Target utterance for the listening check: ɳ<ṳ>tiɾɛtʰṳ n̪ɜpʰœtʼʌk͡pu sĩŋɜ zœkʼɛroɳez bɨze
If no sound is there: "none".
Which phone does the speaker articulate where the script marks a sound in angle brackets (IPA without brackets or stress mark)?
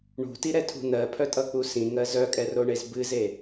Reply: ṳ